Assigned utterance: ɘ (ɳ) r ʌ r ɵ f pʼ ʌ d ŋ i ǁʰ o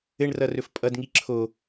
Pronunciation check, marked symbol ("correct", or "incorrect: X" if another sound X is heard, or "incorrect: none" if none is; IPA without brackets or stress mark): correct